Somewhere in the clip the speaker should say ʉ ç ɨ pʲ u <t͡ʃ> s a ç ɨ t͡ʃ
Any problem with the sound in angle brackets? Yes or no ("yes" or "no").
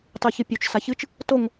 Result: no